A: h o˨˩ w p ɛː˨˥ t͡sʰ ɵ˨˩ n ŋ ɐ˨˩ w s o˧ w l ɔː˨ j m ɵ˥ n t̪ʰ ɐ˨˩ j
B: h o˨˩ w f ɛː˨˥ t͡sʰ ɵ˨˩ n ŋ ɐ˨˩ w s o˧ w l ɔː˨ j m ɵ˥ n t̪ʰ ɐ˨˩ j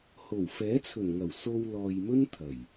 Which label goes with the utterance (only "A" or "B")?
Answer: B